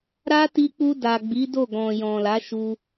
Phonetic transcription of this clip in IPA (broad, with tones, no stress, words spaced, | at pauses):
ɾa˦ti˧k͡pu˧ da˨ɡ͡bi˨˦do˦˨ ɡɔ̃˨jɔ̃˨la˨˦ ʃu˧